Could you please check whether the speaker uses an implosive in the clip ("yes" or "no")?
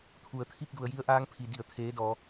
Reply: no